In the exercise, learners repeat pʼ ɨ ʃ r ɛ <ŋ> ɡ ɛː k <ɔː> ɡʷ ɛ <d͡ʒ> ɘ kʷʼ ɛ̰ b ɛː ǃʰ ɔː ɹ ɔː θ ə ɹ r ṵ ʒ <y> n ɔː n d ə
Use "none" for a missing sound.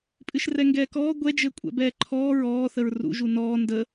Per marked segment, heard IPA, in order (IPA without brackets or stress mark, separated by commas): ŋ, ɔː, d͡ʒ, u